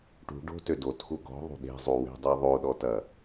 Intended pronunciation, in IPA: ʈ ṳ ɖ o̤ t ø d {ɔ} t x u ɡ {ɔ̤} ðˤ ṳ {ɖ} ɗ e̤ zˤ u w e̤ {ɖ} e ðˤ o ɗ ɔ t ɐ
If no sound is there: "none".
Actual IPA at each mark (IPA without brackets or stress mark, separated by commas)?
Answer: o, ɔ̤, none, dˤ